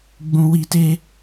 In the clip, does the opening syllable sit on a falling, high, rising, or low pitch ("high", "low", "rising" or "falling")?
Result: low